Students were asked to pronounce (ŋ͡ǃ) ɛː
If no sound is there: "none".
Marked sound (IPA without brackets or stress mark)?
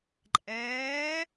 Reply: ǃʼ